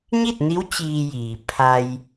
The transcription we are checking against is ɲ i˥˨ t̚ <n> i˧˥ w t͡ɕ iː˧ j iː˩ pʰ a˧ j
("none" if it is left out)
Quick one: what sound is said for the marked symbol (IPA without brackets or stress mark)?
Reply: n